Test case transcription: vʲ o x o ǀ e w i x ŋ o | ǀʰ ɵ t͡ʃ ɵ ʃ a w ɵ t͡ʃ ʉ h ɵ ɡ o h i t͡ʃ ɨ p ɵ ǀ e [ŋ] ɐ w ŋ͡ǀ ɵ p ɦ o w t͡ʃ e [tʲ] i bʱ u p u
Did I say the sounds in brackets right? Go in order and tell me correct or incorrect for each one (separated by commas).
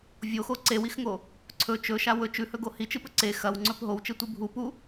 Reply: incorrect, incorrect